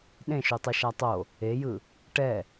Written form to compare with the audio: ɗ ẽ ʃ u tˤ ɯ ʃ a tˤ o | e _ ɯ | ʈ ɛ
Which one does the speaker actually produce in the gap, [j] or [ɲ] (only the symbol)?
j